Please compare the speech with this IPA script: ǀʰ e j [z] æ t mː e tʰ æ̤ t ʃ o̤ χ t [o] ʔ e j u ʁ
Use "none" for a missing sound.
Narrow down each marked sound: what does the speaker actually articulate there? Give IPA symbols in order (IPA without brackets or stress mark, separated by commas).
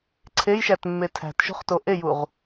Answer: ʃ, o